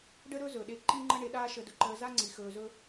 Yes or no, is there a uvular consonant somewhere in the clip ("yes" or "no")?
no